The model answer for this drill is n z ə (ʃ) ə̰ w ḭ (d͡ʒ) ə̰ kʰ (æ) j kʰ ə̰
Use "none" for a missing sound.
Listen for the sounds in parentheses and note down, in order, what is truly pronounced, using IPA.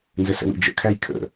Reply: s, d͡ʒ, æ

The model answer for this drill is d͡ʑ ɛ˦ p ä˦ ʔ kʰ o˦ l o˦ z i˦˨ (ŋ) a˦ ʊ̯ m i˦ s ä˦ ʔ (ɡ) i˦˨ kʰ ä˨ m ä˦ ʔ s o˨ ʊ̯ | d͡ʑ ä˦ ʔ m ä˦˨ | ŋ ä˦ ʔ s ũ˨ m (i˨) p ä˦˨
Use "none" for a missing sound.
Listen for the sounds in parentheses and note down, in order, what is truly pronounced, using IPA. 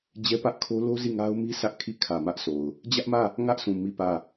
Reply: ŋ, kʰ, i˦˨

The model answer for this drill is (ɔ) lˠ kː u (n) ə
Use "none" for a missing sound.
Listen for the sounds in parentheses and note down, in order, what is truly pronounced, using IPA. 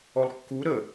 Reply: ɔ, ɾ

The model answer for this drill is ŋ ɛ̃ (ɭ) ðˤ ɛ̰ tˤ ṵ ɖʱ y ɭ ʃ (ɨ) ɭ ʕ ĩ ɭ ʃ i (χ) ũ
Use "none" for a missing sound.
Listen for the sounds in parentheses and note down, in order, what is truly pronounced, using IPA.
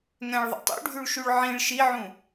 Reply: ɭ, y, ʕ

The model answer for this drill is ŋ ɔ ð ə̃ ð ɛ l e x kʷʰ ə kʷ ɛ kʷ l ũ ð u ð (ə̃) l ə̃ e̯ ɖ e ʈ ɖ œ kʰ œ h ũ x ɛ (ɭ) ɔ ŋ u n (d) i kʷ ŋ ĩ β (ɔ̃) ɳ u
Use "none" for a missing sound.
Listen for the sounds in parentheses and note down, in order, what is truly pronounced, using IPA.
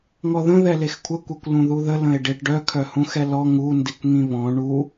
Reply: ə, l, d, ɔ̃

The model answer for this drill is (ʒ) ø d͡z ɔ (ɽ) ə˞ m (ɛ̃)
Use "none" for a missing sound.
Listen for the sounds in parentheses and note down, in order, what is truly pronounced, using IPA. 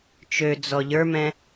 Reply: t͡ʃ, ʎ, ɛ̃

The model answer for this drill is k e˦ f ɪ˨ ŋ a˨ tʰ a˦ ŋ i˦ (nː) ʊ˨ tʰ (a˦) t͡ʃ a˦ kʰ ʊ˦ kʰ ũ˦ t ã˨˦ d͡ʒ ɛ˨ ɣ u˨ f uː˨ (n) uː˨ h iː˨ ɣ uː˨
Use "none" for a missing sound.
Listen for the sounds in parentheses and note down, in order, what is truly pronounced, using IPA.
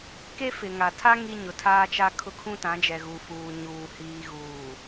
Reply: ɲ, aː˦, ɲ

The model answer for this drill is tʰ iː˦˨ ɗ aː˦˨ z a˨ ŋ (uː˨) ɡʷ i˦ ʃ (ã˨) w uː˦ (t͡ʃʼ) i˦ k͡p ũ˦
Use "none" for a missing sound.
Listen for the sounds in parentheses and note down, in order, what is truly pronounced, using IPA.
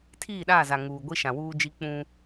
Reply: uː˨, ã˨, d͡ʒ

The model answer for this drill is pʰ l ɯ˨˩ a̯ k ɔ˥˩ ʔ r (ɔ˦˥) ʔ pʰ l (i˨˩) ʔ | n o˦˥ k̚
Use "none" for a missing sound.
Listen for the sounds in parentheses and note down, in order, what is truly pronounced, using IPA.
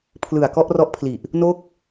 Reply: ɔ˦˥, i˨˩

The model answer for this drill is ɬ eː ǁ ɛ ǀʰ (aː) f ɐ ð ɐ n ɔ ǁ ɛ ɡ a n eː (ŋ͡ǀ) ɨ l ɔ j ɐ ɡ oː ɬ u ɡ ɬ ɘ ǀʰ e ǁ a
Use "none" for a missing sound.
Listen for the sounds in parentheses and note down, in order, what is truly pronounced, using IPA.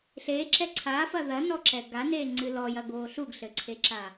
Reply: aː, ŋ͡ǀ

